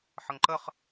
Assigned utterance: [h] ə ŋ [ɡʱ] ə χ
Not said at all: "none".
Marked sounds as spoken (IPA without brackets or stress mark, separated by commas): ħ, ǃ